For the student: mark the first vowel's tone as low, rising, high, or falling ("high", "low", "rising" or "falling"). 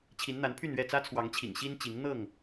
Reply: rising